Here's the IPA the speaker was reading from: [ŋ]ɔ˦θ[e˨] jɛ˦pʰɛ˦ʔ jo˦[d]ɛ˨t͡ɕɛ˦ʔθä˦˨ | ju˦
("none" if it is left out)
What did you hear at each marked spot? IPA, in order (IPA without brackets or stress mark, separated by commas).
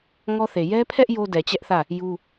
ŋ, e˨, d